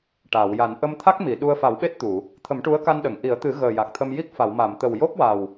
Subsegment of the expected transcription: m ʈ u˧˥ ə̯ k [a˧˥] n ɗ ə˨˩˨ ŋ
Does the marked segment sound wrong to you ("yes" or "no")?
yes